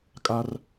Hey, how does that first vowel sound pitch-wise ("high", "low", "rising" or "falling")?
high